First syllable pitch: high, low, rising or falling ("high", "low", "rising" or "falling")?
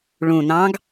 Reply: low